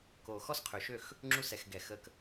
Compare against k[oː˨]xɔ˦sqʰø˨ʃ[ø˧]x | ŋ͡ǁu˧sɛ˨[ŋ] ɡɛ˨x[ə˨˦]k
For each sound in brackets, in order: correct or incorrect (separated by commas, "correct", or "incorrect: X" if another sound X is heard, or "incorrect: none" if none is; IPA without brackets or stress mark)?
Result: correct, incorrect: ø˦˨, incorrect: x, incorrect: ə˧